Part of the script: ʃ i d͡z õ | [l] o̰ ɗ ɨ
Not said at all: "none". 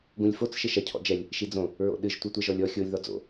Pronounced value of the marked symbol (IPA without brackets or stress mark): ɹ